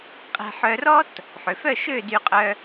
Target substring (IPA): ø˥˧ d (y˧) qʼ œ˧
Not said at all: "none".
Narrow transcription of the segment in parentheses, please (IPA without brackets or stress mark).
y˧